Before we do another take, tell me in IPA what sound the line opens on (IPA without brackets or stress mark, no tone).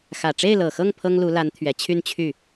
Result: x